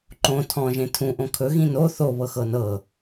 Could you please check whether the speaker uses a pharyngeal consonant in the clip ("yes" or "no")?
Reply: no